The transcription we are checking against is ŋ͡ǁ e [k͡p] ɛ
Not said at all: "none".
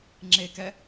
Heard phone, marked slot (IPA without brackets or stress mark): k